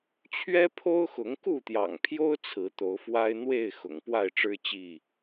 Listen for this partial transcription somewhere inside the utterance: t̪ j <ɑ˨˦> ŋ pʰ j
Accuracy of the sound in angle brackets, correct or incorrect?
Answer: incorrect